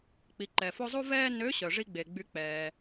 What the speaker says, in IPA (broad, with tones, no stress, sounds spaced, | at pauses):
k͡p i˩˧ ǃ ɛ˩ f o˥ zˤ u˥ v ɛː˥ n ø˧˥ ɕ œ˩ ʐ i˥ ɡ͡b e˩ ɡ͡b y˧˥ k͡p ɛː˩